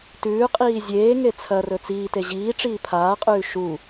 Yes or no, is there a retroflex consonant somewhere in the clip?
yes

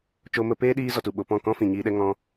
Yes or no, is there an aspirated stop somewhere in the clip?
no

